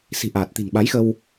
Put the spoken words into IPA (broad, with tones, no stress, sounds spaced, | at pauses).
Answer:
s i̤˨˩ ʔ aː˨˩ t̚ t̪ i̤˨˩ n ɓ a˨˦ j x ə˧ w